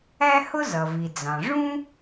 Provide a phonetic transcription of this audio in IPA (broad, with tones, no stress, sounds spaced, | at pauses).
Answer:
æ˥ h ʊ˥ z ʌ˩ v i˩ d͡z ɑ̃˩ ʐ ũ˥